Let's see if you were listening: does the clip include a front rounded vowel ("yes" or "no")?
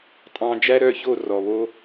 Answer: yes